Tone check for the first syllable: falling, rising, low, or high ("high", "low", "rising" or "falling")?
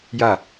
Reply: falling